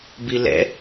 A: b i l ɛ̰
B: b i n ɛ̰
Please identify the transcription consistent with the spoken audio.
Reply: A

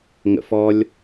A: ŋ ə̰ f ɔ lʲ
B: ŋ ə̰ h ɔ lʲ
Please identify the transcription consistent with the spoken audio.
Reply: A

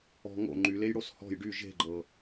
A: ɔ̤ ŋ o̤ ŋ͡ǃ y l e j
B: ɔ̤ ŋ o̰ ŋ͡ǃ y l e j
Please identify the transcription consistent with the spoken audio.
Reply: B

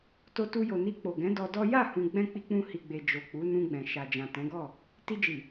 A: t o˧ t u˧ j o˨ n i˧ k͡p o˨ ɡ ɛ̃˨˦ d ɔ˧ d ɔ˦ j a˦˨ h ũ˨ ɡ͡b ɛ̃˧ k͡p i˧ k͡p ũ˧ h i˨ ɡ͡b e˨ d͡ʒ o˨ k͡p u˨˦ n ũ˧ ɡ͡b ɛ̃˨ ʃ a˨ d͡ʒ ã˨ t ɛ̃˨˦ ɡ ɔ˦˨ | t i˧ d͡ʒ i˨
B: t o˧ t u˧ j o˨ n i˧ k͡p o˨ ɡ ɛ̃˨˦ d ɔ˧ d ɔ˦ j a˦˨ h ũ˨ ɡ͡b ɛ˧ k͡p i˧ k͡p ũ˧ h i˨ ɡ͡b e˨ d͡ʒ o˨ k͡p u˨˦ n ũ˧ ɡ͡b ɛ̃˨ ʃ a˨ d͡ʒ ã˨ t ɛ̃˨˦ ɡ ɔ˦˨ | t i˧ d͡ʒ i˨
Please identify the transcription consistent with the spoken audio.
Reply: A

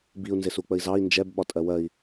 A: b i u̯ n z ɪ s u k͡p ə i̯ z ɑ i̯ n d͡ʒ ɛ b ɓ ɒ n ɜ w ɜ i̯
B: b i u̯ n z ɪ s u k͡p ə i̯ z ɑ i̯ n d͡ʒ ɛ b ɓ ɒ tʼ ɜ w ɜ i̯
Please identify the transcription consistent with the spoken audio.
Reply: B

